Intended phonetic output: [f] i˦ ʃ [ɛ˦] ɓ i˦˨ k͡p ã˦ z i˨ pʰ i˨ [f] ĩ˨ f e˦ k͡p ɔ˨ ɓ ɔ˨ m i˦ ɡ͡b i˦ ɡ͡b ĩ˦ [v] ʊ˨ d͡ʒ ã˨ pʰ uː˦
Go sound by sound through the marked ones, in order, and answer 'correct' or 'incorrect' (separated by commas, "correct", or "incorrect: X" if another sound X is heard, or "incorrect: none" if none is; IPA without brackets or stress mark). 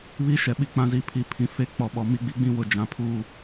incorrect: β, incorrect: ɛ˨, incorrect: pʰ, incorrect: w